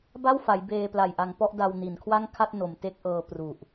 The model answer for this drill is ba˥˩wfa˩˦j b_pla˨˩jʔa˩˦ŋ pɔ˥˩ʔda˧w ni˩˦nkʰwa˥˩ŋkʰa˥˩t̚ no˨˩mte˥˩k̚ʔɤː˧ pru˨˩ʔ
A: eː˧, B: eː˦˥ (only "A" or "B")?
A